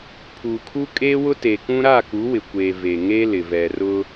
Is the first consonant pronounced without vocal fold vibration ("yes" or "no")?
yes